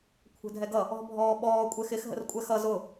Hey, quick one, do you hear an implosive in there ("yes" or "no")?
yes